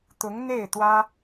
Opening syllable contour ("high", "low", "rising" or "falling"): rising